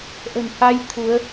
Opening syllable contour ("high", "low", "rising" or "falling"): low